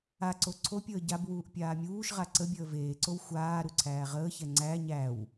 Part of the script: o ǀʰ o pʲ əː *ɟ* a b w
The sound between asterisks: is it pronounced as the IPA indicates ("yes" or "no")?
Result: yes